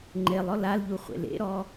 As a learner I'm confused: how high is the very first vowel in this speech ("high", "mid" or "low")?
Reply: mid